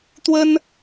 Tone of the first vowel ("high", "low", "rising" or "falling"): high